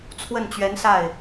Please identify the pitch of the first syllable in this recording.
falling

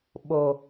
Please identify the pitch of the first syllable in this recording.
low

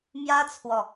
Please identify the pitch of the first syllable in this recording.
high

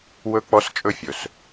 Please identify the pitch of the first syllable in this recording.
high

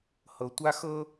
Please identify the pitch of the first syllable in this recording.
low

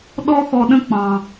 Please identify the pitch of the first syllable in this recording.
high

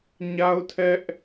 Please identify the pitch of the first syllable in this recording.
high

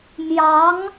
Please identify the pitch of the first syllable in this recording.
rising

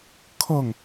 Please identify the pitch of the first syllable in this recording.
falling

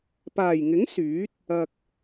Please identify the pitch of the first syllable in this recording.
low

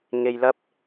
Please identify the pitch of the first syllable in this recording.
low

